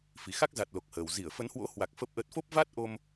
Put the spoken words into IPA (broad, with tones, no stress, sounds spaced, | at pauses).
f i˨˩ x a˦˥ k̚ z a˨˩ t̚ l o˨˩ k̚ h əː˨˩ w z i˧˩ ə̯ f ə˨˦ n h w o̰˧˥ h w a˨˩ k̚ f ə˦˥ p̚ ʔ ə˦˥ t̚ f o˦˥ p̚ v a˦˥ t̚ ʔ o˧ m